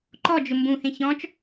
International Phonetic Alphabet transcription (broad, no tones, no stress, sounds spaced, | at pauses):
ǃ ɔ d͡ʒ ʊ m b ũ h ẽ ç ɔ̃ t͡ʃ